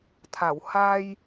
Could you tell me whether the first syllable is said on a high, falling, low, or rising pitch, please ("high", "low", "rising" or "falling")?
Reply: low